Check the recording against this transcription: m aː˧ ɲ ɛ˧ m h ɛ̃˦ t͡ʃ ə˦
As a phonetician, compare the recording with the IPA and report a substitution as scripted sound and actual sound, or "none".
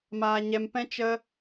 h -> p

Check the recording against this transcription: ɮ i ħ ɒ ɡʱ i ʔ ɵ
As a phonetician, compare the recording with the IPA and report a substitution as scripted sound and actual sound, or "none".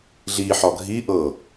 ɵ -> ɤ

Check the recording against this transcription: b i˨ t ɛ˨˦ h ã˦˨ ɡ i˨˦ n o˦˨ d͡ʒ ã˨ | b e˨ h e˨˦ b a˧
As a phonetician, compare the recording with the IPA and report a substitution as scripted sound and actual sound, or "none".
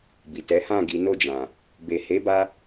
none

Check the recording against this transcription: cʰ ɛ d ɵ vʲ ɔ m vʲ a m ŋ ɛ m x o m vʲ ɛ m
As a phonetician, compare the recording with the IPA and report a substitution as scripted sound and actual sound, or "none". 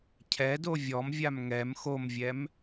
ɵ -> o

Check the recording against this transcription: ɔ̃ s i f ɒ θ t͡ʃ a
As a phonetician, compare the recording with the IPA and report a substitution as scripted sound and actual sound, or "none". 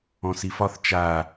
none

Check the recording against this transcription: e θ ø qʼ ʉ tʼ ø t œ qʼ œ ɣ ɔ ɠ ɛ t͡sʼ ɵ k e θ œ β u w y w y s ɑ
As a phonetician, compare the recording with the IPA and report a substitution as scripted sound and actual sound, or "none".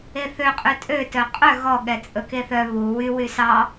none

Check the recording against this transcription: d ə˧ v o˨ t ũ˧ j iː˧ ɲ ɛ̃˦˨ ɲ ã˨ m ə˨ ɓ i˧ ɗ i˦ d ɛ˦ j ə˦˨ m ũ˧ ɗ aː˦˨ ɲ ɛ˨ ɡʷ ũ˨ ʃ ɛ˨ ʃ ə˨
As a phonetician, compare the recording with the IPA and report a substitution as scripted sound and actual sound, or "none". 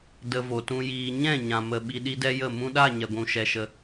aː˦˨ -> a˦˨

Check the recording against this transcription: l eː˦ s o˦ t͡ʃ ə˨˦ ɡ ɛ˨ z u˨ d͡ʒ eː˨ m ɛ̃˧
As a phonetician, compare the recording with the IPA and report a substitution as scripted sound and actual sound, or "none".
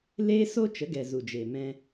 none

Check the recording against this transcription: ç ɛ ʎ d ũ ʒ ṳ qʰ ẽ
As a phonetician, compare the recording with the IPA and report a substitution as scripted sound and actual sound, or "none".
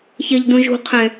none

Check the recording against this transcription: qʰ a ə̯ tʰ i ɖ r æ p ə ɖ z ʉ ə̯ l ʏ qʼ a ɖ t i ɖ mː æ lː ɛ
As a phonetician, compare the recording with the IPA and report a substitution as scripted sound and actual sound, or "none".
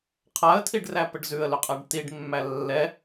none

